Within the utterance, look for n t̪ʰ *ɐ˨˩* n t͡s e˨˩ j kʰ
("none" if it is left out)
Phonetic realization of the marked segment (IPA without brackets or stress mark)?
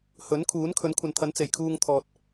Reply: ɐ˨˥